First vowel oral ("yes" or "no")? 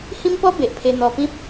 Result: no